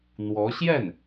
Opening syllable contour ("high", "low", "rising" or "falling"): rising